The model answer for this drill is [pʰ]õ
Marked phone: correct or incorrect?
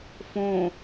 incorrect